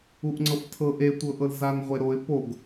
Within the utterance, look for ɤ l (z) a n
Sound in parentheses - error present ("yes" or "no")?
no